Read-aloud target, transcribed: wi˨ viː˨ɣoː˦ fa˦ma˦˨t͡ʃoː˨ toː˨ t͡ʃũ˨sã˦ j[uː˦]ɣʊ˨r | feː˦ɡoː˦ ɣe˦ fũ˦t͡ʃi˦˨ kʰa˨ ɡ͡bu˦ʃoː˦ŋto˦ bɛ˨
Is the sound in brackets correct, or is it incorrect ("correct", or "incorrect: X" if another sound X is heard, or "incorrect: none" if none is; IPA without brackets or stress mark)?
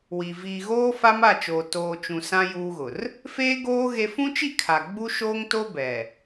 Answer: correct